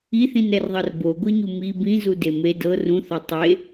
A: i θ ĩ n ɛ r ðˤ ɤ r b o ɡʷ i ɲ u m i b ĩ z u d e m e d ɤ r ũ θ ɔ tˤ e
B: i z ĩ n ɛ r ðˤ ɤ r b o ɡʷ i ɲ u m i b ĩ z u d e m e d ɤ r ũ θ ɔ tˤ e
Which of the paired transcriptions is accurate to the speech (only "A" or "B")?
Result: A